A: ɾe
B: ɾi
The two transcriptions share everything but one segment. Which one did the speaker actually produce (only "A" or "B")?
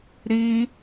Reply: B